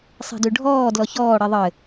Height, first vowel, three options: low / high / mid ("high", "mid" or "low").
high